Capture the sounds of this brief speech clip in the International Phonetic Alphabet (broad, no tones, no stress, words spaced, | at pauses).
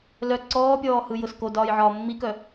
lœ ǀɔːpʲɔːhɯjʊs kodɒːjʕɒː mːikœ